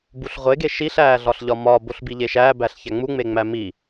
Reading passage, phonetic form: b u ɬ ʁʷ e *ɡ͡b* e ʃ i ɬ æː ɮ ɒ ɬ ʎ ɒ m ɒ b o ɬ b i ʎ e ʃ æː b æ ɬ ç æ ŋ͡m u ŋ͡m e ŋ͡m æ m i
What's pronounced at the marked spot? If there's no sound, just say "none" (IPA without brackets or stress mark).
ɡ